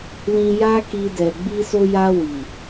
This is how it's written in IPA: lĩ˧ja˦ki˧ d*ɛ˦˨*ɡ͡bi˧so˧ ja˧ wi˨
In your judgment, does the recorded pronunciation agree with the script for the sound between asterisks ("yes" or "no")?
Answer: no